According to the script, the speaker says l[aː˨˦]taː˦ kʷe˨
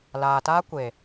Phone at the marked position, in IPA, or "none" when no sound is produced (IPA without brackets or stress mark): aː˨